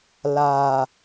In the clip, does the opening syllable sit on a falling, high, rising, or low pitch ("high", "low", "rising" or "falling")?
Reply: low